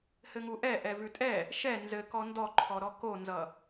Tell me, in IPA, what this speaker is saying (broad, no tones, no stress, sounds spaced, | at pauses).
h ɘ ŋ u ʔ ɛ ʔ ɛ v ʉ tʼ ɛ | ʃ ɛ n z ɘ k ɔ n d ɔ ǃʰ ɔ ɾ ɔ k o n z ʌ